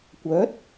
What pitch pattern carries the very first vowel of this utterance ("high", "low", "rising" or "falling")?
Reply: rising